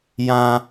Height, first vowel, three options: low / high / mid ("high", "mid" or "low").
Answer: low